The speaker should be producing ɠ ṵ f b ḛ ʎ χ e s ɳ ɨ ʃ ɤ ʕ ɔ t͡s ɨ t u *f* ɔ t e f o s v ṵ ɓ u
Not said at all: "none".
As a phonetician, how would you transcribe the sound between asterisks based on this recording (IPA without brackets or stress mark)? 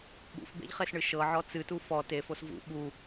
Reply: f